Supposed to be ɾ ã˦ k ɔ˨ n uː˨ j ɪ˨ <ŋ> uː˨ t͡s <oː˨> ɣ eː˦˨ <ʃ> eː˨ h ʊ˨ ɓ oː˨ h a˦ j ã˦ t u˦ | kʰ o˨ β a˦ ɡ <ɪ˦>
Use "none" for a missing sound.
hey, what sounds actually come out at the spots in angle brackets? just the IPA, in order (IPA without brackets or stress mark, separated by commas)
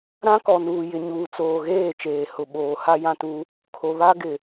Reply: ɲ, oː˨, t͡ʃ, ɪ˨